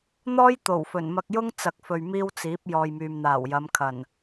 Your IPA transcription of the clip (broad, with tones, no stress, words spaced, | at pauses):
n̪ɔː˥j t̪o˨˩wfɵ˨˩nmɐ˧k̚jʊ˥ŋ t͡sɐ˨k̚fɵ˨ɥ miː˥wt͡siː˨˥p̚ jɔː˨jmyː˨mn̪aː˨˩wjɐ˨˧m kʰɐ˨˩n